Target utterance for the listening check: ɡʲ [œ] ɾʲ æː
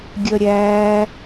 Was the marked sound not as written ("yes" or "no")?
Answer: no